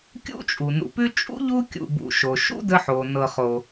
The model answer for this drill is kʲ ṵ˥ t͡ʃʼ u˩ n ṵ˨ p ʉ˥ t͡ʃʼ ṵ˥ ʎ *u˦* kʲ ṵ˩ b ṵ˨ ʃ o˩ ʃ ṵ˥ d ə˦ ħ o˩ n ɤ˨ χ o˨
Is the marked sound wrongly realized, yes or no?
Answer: no